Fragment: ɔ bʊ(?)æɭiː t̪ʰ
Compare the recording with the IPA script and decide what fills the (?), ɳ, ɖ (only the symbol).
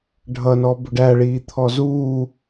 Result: ɖ